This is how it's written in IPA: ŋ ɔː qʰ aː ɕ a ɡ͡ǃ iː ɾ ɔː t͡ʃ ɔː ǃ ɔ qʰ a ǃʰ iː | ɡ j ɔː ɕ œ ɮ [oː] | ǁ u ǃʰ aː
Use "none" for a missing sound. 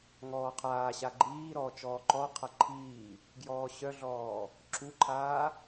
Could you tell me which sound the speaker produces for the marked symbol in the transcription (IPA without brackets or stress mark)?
ɔː